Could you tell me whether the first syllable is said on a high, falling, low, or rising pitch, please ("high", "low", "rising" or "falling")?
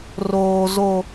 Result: high